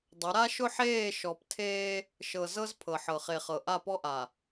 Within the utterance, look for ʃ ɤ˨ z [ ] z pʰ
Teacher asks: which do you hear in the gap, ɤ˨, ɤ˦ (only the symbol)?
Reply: ɤ˦